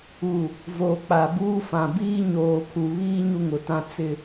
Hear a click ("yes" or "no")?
no